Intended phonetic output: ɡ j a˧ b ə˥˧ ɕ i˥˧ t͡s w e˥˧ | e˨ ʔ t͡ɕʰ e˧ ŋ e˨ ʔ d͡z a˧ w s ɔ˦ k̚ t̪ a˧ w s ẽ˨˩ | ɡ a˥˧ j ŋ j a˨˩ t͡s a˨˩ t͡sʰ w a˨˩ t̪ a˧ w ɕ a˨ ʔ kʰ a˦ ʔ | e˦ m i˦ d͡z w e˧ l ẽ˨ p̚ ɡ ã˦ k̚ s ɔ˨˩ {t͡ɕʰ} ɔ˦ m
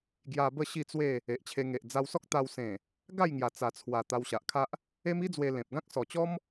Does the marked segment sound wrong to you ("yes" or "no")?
yes